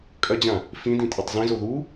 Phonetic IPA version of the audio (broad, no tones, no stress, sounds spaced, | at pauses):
kʼ ɐ d͡ʑ ã | f ĩ d ĩ tʼ e tˤ z ĩ z o ð u